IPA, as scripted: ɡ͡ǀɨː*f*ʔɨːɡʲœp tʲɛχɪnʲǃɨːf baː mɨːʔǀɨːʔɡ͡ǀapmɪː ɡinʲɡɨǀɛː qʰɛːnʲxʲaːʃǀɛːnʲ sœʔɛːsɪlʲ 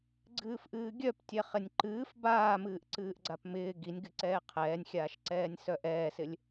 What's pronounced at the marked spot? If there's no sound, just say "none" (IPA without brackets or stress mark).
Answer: f